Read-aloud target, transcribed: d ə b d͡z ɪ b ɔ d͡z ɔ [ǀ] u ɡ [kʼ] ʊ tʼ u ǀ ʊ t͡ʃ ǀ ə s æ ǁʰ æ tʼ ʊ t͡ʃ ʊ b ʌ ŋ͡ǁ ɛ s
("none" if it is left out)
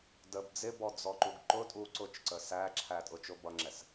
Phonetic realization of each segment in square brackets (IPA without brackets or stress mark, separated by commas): ǃ, ǃ